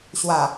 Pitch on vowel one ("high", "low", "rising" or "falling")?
low